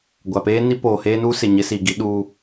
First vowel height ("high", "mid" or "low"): low